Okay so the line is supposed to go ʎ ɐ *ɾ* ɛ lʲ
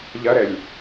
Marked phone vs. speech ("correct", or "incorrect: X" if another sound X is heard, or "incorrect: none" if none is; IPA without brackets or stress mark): correct